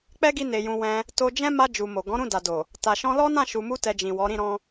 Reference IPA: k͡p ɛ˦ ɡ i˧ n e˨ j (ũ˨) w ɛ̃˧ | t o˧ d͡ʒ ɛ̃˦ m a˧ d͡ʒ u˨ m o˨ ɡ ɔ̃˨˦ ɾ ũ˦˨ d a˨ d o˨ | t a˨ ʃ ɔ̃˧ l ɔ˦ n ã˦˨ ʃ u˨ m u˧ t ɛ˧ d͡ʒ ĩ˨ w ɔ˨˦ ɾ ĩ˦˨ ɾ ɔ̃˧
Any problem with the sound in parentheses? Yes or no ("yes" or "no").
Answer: no